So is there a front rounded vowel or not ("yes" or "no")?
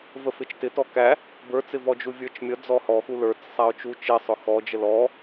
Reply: no